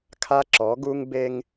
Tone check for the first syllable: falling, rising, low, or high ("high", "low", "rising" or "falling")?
high